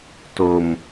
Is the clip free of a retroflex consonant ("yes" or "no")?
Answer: yes